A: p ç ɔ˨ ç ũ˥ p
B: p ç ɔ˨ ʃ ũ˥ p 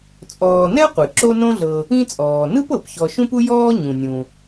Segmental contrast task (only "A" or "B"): B